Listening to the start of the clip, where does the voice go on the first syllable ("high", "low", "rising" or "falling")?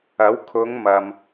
rising